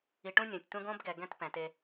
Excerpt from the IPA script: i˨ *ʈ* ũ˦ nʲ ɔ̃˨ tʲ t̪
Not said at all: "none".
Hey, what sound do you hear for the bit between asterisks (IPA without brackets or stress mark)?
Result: ʈ